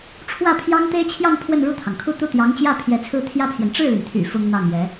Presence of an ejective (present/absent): absent